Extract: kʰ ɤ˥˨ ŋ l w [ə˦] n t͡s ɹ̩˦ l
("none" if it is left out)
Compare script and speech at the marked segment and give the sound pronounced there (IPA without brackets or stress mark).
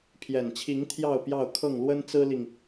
ə˦